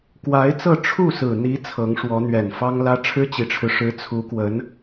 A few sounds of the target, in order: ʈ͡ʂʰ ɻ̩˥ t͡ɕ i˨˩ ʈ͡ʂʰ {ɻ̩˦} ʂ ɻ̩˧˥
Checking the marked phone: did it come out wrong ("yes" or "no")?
no